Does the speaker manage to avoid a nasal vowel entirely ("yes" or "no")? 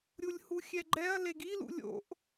yes